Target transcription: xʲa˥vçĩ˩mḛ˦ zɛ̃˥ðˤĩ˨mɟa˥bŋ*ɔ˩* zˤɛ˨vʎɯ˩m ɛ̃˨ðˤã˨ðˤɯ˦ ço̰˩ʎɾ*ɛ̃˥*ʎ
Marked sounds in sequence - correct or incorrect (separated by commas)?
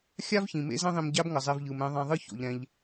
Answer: incorrect, incorrect